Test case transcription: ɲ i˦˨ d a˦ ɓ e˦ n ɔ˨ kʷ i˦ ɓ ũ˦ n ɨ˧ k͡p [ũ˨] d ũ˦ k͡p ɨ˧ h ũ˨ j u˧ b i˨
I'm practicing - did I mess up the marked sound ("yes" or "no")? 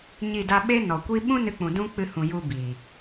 no